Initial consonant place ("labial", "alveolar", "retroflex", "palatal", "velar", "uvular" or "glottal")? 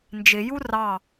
alveolar